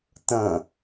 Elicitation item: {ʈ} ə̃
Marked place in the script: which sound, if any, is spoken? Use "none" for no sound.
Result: t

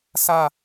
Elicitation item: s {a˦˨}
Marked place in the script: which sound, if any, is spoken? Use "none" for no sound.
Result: a˦˨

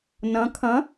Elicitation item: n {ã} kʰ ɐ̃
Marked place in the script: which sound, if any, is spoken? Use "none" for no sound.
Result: ɐ̃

